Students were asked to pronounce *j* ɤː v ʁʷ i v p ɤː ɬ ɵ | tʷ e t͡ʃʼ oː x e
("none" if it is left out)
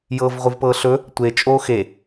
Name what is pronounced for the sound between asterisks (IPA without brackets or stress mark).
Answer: j